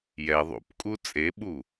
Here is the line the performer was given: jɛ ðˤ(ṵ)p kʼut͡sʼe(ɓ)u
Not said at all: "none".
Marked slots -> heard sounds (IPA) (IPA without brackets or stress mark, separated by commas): ṵ, ɓ